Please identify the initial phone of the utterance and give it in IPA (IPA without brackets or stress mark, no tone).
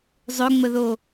zˤ